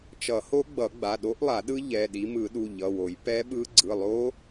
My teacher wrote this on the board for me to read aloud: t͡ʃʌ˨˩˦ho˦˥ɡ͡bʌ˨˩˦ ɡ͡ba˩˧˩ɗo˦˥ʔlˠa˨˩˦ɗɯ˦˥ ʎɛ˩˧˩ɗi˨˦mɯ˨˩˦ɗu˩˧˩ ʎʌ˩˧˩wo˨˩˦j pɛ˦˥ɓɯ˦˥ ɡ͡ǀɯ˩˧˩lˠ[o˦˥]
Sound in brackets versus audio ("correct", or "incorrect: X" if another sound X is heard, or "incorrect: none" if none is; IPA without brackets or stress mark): correct